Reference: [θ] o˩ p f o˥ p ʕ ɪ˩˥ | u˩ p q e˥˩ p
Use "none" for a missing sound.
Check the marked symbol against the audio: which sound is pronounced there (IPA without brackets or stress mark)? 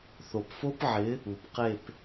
θ